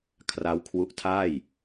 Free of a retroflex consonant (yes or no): yes